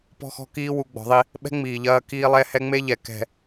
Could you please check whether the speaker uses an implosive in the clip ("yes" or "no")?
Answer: yes